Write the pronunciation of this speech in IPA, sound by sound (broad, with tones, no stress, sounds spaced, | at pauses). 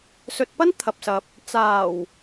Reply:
s ɵ˧ t̚ p ɐ˥ n t̪ʰ ɐ˨ p̚ s ɐ˨ p̚ | t͡s aː˨˩ w